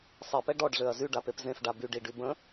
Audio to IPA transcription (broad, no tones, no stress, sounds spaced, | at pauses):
sˤ i p ɛ ɖ ɔ ɖ ɮ ø ɐ̯ z y ɖ a p e p z ẽ f ɖ a b y ɖ i ɖ y b ə̃